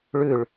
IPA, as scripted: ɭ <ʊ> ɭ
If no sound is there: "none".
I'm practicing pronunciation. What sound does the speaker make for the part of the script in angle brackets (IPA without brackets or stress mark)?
ʉ